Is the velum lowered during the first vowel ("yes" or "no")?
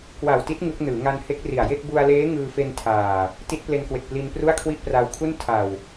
no